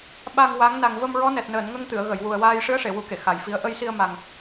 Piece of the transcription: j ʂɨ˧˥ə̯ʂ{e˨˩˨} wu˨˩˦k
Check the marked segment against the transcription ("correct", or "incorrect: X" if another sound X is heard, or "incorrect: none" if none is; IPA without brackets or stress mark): correct